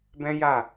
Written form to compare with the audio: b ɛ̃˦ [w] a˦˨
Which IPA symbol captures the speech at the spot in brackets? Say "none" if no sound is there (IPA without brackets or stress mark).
j